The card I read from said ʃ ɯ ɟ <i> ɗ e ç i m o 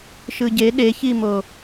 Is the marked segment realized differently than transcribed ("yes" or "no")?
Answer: yes